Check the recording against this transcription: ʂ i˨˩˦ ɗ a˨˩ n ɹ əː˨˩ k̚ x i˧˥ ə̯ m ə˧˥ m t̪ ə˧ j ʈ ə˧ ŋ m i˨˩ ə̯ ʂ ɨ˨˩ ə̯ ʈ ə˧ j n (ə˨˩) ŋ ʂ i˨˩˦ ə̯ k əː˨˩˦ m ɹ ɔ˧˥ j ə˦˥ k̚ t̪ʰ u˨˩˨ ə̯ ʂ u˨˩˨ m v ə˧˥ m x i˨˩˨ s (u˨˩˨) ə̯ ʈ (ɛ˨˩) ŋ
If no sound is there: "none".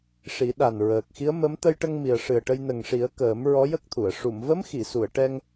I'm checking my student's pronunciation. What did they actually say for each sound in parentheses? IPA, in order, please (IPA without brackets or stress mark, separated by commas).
ə˨˩, u˨˩˨, ɛ˧